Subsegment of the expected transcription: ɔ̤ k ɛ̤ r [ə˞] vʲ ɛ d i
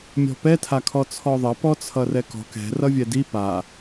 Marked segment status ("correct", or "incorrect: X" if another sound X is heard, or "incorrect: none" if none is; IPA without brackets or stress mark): incorrect: ʌ